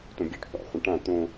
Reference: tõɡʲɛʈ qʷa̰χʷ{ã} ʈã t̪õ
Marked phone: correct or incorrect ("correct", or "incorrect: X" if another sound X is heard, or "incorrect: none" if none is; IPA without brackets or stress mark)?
incorrect: ə̃